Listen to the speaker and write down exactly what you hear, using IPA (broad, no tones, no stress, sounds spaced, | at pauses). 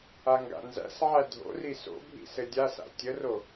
a ŋ ɡ a̰ n z æ̰ s ʕ æ dʱ o̰ r i s o̰ bʱ ḭ s ɘ dʲ a s a̰ tʲ ə r o